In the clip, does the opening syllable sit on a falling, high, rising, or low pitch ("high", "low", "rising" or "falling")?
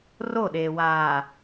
falling